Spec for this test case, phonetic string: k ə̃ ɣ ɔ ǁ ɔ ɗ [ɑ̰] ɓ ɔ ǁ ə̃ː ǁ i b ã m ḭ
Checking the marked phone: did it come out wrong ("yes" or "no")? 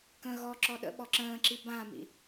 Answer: yes